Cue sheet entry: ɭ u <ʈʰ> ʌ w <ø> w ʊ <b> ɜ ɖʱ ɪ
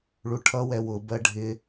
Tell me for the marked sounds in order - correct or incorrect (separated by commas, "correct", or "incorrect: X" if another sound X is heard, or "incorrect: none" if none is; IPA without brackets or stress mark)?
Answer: correct, incorrect: ɛ, correct